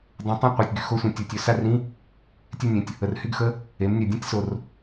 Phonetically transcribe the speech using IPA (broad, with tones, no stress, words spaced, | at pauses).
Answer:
dˤũ˩˧tˤũ˧˥˧ qʷe˩˧˩tʲɡy˧˥˧xo˧˥˧sʷĩ˩˧˩ tʲo˩˧˩tʲø˩˧ sa˥˧rĩ˧˥˧ | tʲɛ˥˧nʲẽ˩˧˩tʲ | ə˩rhy˥˧ɡxə˧˥˧ | e˩˧mnʲœ˩dʲũ˥˧tʲso˩r